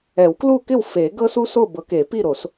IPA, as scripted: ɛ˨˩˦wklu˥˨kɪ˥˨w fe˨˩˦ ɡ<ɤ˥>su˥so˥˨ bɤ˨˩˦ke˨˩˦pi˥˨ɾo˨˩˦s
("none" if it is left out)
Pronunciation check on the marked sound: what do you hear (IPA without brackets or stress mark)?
ɤ˥